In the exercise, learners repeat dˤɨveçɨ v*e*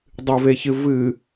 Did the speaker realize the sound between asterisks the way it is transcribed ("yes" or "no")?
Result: no